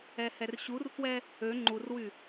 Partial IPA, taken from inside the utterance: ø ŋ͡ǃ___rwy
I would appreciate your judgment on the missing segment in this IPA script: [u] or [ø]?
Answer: u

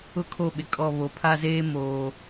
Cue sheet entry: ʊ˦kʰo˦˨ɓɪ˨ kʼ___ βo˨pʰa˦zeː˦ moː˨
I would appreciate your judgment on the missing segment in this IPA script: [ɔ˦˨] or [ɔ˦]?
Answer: ɔ˦˨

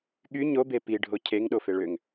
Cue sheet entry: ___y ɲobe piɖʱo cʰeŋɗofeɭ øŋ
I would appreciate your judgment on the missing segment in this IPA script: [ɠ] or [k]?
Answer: ɠ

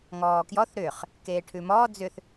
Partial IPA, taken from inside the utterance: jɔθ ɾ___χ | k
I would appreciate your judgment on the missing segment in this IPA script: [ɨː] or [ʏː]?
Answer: ʏː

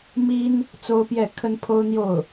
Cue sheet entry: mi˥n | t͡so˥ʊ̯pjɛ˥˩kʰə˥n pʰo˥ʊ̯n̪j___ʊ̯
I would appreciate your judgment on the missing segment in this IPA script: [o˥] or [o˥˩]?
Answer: o˥˩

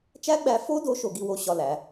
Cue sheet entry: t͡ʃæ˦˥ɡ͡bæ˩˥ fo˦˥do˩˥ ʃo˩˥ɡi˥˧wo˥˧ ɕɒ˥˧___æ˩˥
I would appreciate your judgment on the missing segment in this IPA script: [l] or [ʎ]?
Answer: l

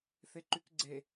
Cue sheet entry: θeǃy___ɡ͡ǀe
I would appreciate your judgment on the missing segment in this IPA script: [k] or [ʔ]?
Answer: k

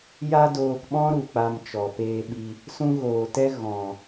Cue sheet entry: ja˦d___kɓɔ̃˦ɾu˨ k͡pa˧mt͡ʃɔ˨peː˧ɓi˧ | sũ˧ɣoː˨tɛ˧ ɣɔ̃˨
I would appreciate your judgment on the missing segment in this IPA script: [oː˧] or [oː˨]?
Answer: oː˧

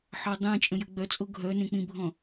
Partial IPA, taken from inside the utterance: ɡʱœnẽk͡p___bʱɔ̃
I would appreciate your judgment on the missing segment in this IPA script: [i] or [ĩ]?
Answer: ĩ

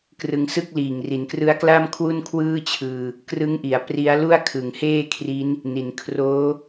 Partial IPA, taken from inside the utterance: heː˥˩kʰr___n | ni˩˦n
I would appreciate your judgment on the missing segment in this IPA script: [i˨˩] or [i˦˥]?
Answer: i˦˥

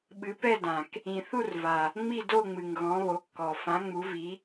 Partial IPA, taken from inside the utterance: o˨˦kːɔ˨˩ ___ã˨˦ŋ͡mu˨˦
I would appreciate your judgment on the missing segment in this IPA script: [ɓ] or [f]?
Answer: f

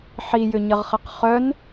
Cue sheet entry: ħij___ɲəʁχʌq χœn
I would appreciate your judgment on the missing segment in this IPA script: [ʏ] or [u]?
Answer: ʏ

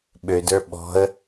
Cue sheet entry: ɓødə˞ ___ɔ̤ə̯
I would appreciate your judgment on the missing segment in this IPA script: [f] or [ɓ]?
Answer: ɓ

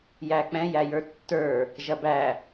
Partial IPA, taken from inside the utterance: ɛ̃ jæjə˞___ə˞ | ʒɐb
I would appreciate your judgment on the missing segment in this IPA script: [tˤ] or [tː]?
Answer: tː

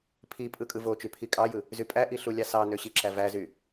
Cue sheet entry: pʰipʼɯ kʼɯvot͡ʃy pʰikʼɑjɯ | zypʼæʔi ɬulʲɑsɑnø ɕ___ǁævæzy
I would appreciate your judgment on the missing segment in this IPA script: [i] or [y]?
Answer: i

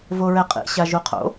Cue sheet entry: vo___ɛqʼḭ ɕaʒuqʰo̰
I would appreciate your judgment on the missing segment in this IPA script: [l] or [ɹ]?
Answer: ɹ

